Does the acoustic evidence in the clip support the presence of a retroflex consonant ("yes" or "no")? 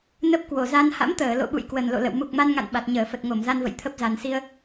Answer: no